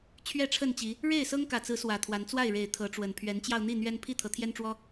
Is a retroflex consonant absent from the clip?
no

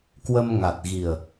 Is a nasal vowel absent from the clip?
yes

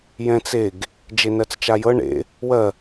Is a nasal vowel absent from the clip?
no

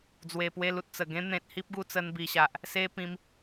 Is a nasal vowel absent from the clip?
no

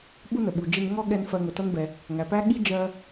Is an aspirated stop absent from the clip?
yes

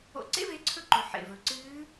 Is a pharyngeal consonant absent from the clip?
no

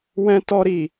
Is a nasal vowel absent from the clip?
no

